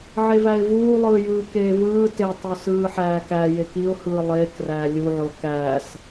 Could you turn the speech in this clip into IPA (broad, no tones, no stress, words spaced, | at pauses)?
ʕevæɪ̯vuːlˠɯː jɯːkeːvɯː tetˤu sɯːħæːkæ jekiʊ̯ hɯːlˠeːk ræːlʲuʕo kæːs